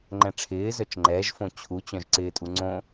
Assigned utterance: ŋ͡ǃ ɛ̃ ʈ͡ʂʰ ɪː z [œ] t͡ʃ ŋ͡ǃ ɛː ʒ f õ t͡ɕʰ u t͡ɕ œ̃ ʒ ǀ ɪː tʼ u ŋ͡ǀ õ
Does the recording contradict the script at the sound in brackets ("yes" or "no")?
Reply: no